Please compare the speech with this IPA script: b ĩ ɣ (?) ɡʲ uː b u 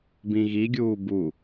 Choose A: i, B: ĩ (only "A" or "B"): A